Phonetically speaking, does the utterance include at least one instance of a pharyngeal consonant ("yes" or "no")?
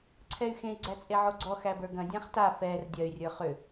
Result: yes